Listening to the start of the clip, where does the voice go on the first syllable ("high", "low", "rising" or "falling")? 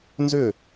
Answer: falling